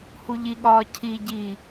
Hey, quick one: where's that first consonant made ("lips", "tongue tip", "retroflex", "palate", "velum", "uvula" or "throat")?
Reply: throat